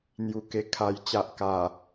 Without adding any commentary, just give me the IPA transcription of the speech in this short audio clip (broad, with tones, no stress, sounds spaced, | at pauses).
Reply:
n̪ j u˨˩ k e˨˩ kʰ a˨˩ j t͡ɕ a˨ ʔ k a˨˩